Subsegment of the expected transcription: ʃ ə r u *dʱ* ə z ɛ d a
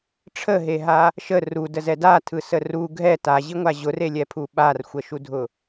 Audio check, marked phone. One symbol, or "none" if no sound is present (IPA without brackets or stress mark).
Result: d